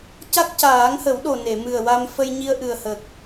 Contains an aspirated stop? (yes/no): no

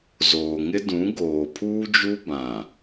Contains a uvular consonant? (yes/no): no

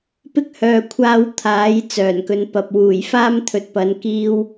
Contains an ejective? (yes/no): no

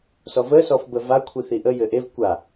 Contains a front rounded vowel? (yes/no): no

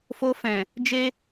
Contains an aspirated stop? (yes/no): no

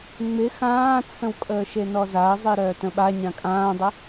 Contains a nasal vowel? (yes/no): yes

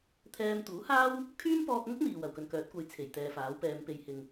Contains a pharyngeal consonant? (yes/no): no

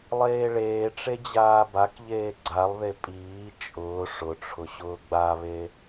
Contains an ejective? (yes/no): yes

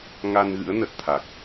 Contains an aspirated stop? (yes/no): yes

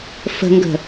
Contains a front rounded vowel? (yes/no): no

